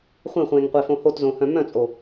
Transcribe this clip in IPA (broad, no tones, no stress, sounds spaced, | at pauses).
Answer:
χʷ ẽ χʷ ẽː ŋ qʷ e f õ h o t z õ h œ̃ m œ̃ t͡sʼ o